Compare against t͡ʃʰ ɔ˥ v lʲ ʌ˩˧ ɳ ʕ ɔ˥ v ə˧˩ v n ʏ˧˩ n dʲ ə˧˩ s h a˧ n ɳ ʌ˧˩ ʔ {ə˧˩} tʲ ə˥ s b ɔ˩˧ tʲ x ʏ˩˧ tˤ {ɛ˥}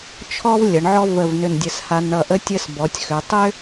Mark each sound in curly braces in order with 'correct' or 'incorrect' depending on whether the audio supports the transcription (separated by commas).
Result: incorrect, incorrect